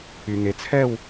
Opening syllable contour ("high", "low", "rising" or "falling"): low